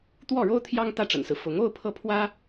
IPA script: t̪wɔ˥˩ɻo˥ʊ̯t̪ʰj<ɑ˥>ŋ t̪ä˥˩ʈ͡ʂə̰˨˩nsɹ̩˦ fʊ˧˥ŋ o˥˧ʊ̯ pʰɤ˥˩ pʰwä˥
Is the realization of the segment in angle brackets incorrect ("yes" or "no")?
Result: no